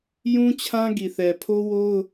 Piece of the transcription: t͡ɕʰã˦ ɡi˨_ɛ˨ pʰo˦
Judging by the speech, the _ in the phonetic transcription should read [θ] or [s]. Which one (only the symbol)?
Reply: θ